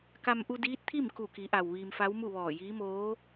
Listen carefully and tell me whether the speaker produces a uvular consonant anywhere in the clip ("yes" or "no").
no